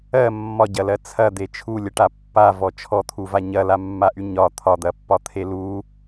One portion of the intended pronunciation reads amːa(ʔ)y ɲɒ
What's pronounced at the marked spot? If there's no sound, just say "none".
ʔ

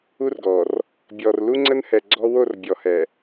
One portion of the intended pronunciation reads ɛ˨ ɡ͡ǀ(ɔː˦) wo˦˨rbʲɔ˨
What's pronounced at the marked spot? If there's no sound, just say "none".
ɔ˦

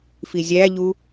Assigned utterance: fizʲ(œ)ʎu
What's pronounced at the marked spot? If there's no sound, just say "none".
æ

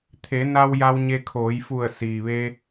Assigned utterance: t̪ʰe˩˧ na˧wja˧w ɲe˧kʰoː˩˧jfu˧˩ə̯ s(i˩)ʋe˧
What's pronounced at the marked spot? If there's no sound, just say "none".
iː˩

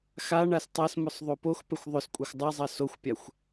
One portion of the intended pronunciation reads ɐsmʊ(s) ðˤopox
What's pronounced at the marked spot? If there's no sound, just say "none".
sˤ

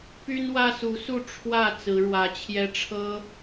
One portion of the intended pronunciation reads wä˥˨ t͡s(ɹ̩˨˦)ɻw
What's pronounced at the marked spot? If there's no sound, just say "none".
ɹ̩˨˦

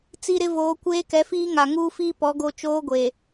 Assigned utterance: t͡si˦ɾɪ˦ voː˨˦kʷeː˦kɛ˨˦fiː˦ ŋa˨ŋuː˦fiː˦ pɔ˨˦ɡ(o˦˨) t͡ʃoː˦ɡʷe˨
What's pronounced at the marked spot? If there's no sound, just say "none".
o˦˨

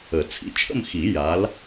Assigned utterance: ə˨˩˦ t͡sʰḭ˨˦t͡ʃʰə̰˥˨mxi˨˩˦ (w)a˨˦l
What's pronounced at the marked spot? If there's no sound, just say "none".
j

